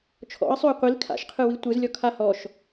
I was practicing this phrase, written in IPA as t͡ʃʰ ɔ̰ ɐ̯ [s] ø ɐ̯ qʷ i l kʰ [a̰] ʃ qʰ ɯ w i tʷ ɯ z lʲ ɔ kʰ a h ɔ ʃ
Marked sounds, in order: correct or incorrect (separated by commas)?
incorrect, correct